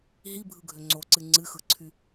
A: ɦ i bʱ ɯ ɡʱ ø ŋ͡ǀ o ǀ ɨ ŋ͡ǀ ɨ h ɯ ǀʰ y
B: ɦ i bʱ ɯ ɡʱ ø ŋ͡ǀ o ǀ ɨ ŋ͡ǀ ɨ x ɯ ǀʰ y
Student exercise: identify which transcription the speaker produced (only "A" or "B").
B